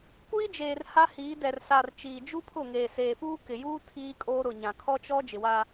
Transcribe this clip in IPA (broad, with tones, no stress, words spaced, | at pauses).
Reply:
kʷiː˦d͡ʒeː˨r ha˦hiː˨˦ dɛ˨r sa˨r t͡ʃiː˨d͡ʒu˦pʰʊ˦˨ŋeː˨ seː˨fuː˦kɪ˨juː˦ tʰiː˦kʼoː˦ ɾʊ˨ɲã˨kʰɔ˦t͡ʃɔ˦ d͡ʒɪ˨wa˦